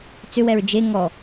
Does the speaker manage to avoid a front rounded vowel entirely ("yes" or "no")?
no